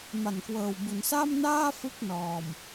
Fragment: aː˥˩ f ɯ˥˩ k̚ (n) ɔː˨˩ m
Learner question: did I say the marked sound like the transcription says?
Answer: yes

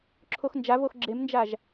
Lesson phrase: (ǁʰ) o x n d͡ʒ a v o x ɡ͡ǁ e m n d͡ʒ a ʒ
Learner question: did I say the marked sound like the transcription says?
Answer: yes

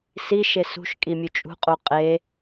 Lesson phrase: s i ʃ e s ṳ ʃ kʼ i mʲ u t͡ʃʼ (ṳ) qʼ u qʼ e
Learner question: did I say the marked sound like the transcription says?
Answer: yes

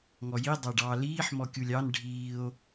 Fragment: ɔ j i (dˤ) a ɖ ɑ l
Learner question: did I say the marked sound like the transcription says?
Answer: yes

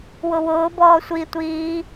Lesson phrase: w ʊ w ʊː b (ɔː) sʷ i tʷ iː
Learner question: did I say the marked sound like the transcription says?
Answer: yes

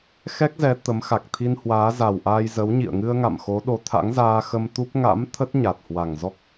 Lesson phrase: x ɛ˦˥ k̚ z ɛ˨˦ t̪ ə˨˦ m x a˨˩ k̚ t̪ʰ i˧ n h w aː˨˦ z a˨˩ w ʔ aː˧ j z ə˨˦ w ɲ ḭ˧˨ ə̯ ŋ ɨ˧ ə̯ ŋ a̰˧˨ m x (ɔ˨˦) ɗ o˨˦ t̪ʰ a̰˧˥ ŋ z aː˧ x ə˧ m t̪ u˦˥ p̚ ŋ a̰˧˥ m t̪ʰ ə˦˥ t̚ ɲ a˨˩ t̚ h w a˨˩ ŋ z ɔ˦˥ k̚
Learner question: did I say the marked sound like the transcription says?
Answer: no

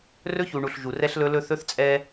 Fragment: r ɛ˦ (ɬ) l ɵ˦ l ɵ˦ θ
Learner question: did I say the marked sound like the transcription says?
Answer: yes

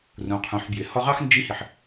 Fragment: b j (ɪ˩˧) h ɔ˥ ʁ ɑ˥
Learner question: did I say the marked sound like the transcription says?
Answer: yes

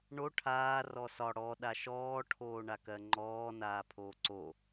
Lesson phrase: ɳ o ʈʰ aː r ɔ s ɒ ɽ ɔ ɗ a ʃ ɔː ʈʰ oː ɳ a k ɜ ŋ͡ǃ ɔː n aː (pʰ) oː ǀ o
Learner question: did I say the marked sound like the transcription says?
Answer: yes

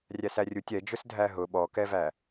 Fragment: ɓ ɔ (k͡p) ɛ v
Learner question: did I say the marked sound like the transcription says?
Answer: no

